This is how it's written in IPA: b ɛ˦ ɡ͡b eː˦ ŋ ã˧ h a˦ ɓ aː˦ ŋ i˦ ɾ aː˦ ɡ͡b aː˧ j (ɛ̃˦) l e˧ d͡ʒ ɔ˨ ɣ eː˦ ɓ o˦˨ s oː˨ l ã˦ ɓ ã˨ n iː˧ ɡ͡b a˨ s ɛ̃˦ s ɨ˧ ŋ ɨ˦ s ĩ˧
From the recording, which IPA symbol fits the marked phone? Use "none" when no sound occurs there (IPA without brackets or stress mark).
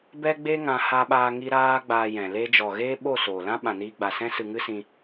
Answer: ɛ̃˨